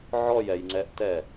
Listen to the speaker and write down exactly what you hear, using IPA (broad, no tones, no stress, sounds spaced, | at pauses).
ʕ ɔ j ɛ j ŋ͡ǀ ɛ ʔ t ɛ